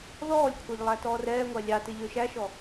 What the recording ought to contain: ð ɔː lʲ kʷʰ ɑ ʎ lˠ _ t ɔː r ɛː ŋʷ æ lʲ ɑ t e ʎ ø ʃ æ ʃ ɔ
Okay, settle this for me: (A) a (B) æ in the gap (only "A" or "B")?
B